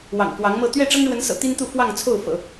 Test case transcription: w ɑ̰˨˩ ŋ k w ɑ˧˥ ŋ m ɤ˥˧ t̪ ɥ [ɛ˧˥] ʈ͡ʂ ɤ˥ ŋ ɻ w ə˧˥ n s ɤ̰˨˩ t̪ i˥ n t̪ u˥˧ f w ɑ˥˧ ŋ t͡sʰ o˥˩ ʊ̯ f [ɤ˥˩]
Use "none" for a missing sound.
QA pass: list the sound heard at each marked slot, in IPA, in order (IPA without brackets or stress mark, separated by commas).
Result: ɛ˥˩, ɤ̰˨˩˦